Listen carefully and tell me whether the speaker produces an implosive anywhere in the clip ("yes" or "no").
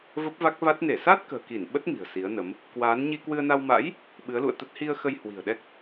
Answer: yes